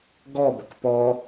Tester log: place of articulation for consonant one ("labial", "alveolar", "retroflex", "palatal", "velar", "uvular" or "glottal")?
velar